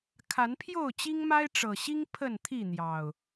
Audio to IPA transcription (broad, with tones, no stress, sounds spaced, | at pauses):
kʰ a˨˦ n pʰ j o˥˨ ʊ̯ t͡ɕ i˦ ŋ m a˦ ɪ̯ ʈ͡ʂ ɤ˨˩ ɕ i˦ ŋ pʰ ə˥˨ n t̪ʰ i˥˨ n̪ j ɑ˨˩ ʊ̯